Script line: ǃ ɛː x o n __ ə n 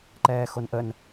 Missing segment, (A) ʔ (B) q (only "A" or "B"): A